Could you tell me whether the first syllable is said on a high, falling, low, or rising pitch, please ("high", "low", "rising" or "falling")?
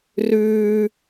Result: high